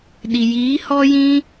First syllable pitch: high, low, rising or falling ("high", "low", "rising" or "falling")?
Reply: low